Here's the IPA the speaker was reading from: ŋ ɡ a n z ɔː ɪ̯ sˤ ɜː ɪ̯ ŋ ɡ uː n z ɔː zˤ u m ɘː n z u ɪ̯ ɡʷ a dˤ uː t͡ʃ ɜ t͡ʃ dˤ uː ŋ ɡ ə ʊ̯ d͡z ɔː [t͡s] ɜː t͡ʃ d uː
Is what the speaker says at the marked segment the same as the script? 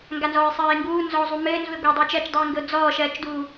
no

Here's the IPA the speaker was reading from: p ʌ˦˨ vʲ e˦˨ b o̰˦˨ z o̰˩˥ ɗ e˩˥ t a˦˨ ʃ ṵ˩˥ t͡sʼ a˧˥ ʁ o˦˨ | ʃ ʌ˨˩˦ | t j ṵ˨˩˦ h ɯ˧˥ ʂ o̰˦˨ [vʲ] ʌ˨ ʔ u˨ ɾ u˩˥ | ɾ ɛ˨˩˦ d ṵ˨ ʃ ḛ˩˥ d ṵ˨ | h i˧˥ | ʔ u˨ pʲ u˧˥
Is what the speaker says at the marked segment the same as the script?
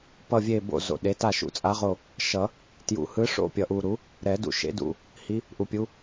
no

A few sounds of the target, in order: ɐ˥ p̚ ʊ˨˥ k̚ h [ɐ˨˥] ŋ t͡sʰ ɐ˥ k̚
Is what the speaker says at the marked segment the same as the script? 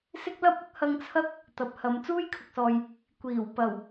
no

